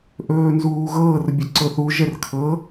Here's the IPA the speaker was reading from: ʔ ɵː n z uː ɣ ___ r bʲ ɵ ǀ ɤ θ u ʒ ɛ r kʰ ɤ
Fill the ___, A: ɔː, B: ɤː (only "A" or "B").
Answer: B